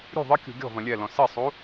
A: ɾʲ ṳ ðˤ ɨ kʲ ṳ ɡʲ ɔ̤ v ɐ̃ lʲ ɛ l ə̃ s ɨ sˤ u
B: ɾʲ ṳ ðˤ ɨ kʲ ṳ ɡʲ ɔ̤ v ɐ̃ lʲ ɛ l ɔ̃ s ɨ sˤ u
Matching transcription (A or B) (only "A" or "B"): B